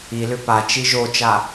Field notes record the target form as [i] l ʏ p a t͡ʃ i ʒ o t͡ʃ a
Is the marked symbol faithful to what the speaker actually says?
yes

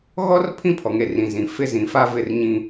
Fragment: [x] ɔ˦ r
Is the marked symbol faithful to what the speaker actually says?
no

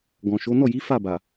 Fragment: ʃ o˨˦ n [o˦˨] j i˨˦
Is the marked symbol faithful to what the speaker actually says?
no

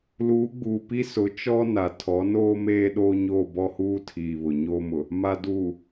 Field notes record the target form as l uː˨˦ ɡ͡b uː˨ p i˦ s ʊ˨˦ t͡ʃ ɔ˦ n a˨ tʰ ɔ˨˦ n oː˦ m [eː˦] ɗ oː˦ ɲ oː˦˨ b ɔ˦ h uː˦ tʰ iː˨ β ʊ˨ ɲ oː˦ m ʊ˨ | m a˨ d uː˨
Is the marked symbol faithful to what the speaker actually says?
yes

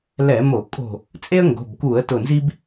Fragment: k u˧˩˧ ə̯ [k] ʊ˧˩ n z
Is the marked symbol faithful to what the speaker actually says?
no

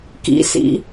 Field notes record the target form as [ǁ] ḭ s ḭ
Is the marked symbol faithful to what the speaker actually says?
no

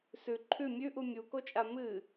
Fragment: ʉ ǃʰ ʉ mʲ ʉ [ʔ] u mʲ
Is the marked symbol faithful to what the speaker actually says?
yes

